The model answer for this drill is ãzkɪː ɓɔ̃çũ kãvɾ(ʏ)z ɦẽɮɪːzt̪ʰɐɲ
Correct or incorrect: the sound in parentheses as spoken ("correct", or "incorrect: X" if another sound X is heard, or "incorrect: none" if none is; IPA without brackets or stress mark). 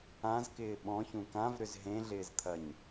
correct